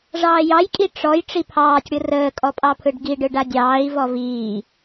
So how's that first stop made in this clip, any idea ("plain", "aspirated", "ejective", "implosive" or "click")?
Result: ejective